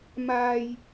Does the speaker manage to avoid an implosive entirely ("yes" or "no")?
yes